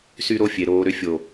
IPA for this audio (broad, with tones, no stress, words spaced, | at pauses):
sy˦ɾo˦fʲe˨ ɾoː˨ɾʏ˨˦fʲo˨